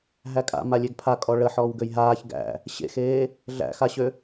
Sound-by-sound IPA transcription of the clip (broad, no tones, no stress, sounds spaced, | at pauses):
ɦ æ kʼ a̰ m a lʲ e ɡ pʰ a kʼ ɔ ɭ ə ħ ɔː w ɡ ø j ɦ aː ç ɡ æ̰ | ɕ ḛ x eː | ɮ æ̰ x a ɕ ø